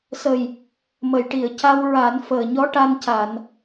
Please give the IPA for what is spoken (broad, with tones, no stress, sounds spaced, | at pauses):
s ə˨˩ j | m ə˨˩˨ j ʈ i˨˩˨ ə̯ c a˧ w ɹ a˨˩˦ n f əː˨˩ ɲ ɔ˧ ʈ a˧ n c a˨˩˨ n